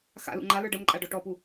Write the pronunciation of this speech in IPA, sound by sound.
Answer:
x a̰ l ṵ ŋ͡ǃ a l ə˞ ɖ ə m ǃʼ a ɖ ɔ ʈ ɔ p u

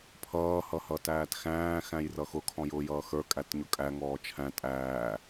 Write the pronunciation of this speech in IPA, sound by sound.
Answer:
pʰ ʌː h ʌ h ʌ t æː t x æ̃ː x æ̃ j r ʌ x ʊ kʰ ɔ̃ j ʊː j ʌː x ə˞ kʼ æ t ɲ ʊ kʼ æ ŋ ɔː t͡ʃʰ æ̃ tʼ æː

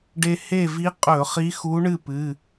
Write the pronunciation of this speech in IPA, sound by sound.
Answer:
ɖ e˧ h e˥˨ v i˧˥ qʼ ɵ˧˩˧ χ i˧˥ x u˧˥ ɳ ɨ˥˨ p ɨ˩˧˩

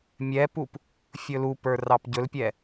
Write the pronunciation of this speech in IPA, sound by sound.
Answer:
mʲ ɛ p u p | fʲ ɵ l u p ə˞ r ɑ p ɟ ɵ l pʲ ɛ

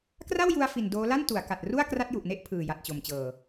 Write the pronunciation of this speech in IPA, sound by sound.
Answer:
k r a˥˩ w j u˧ a̯ f i˨˩ n d oː˦˥ l a˥˩ n t u˩˦ a̯ k a˨˩ t̚ r u˥˩ a̯ k r a˦˥ t̚ j u˨˩ ʔ n e˦˥ ʔ pʰ ɯː˨˩ j a˨˩ t̚ t͡ɕ o˨˩ m t͡ɕ ɤː˨˩

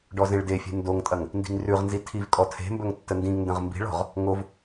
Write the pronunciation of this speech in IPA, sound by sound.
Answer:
ɖ ɔ z ẽ ɭ d e fʲ e̤ n d o ŋ tʼ ɐ ŋ | n d i̤ ŋ r ʉ ʁ n z i tʰ i v kʼ ɔ tʰ e̤ m b ɵ ŋ tː ə n d ĩ ŋ n d ə̃ ʁ m b i̤ ɭ ɔ̤ ʁ | ŋ o v

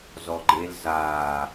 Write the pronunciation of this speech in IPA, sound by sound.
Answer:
z ɔ ɡ͡ǃ e l z aː

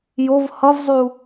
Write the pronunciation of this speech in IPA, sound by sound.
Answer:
j o v h ʌ v zˤ u

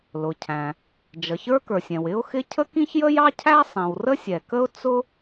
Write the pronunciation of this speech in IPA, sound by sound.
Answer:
l ʊ˩ cʰ æ̃˩ | d͡ʒ ʌ˩ ç ə˞˥ k ə˞˩ sʲ ɛ̃˩ w ɪ˥ ʊ̯ x ɪ˥ cʰ ə˥ k ĩ˥ ç j ə˥ j ɑ˥ cʰ æ˥ sˤ ĩ˩ w r ə˥ sʲ ɛ˩ k ə˥ ʊ̯ t͡s ʊ˥

